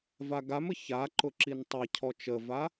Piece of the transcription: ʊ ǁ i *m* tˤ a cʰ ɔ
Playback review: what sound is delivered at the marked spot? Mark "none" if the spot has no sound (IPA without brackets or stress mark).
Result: n